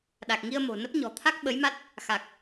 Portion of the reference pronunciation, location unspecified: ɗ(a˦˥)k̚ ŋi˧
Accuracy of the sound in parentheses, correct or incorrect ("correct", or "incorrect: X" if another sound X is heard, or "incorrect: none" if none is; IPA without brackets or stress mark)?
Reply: incorrect: a˨˩